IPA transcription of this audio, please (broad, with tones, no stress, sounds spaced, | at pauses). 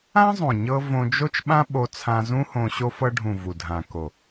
ã˦ zˤ õ˨ ɲ ɤ˧ v õ˧ d͡ʒ o˦ t͡ʃ ɓ ã˦ ɓ o˧ t͡sʰ ã˧ z ũ˦ h õ˧ ɕ o˧ f ɤ˧ ɖʱ ũ˨ v u˨ dʱ ã˨ k o˨